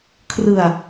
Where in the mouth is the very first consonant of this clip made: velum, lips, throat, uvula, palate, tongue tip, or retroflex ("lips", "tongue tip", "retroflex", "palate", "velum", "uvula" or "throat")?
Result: velum